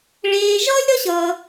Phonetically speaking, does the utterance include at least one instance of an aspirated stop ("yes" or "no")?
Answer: no